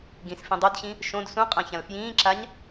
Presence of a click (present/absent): present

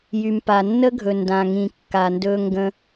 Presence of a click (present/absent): absent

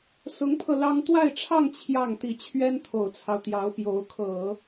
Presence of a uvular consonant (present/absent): absent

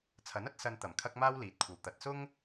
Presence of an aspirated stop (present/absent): present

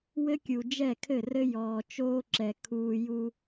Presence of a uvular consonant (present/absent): absent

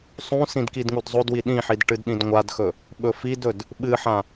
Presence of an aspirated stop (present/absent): absent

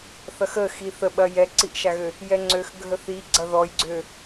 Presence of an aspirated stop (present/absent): absent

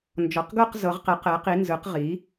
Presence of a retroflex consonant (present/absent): absent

